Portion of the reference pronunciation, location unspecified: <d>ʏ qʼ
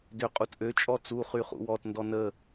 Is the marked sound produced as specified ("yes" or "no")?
yes